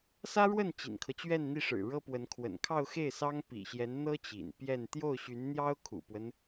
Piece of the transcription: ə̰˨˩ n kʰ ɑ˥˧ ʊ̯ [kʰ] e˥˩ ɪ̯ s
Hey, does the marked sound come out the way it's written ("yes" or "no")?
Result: no